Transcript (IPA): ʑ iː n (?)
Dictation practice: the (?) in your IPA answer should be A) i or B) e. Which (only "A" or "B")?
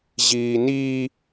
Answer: A